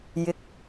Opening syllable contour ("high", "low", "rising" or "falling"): rising